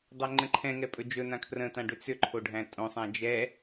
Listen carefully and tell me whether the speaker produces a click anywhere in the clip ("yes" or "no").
yes